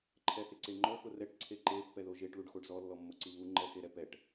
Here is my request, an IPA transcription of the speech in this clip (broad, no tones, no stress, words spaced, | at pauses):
ǃʰɛθɪǀeŋ͡ǃɔ xʊrɛʈ ǀʰeǃe pːɛðoʒeʈ ɭuɖxoɖzɔ lːɔmːoǀiβu ŋ͡ǃɛxeɾɛpɛʈ